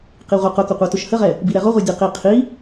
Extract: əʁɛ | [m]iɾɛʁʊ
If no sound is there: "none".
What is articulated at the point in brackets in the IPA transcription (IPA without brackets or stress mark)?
b